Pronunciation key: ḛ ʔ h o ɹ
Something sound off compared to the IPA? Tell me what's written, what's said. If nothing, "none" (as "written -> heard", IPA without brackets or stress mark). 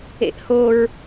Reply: none